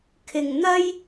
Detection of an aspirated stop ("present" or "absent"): present